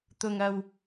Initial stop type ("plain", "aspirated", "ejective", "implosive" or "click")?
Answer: plain